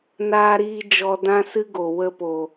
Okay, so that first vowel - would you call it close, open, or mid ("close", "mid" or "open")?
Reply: open